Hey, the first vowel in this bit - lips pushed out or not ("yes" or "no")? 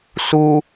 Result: yes